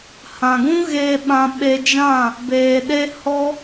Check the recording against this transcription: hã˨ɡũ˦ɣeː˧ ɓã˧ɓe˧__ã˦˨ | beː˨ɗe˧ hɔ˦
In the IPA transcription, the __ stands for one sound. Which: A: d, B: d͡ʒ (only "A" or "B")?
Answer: B